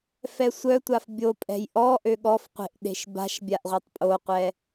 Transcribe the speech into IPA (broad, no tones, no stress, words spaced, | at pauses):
fɛsʷœtʷaf bʲopʼɛ̤j ʔɔ ʔøɠɔfqʷe̤ʔ ɗe̤ʃba̤ʃbʲaʔ ʁʷɛtˤpʼoqʷɛ